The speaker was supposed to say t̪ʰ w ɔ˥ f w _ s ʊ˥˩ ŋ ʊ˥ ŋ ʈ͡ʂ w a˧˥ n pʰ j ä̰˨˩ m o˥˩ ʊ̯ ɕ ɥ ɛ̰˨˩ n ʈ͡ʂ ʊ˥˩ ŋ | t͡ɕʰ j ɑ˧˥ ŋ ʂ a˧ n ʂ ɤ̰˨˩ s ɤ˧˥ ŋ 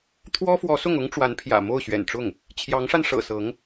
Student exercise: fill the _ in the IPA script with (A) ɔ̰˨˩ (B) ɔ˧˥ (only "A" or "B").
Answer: B